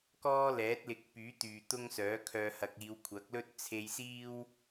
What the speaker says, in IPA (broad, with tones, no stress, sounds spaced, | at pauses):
k ɔː˥ l ɛː˨˥ t̚ l ɪ˨˥ k̚ p yː˨˥ t̪ yː˨ t̪ ʊ˥ ŋ s œː˨˥ kʰ œː˧ h ɐ˧ k̚ iː˨˧ w kʷʰ ɐ˨˥ k̚ l ɵ˥ t̚ t͡sʰ e˧ j s iː˥ w